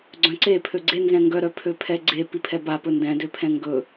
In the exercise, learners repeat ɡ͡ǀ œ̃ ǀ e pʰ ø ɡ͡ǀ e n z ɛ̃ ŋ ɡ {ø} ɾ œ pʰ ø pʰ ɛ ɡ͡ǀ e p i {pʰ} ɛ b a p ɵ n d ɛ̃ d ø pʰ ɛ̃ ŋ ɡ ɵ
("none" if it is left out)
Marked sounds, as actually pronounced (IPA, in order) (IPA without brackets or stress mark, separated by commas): œ, pʰ